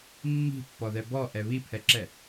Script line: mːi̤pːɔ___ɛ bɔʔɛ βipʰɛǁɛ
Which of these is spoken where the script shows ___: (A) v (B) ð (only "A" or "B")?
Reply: B